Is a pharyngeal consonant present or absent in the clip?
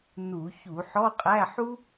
present